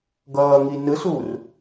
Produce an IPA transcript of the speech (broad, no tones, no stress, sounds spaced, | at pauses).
ɡ ʌː ŋ i n ɯ s uː r